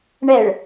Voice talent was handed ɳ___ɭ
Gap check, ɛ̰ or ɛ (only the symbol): ɛ